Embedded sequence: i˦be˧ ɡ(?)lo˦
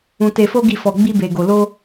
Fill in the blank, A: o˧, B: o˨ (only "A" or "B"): A